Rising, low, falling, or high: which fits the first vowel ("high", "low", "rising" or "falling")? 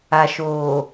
low